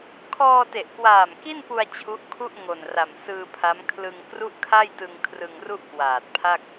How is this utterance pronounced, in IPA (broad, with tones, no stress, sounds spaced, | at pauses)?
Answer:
kʰ ɔː˧ t e˨˩ ʔ k w aː˨˩ m k i˥˩ n p u˧ a̯ t͡ɕʰ u˦˥ ʔ kʰ u˥˩ ʔ ŋ o˨˩ n r a˨˩ m s ɯː˧ pʰ a˦˥ m kʰ l ɯ˧ ŋ k r u˥˩ ʔ kʰ a˥˩ j t ɯ˧ ŋ kʰ r ɯ˧ ŋ r u˥˩ ʔ k w aː˨˩ t̚ pʰ a˥˩ k̚